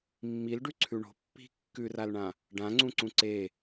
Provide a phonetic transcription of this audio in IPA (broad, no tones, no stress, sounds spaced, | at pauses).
mː i l ɖ ʉ ǀʰ ʉ ɳ o̤ pː i̤ kː ʉ r a l ɳ ã | ɖ ã ŋ͡ǀ ũ ǀ ũ ǀ e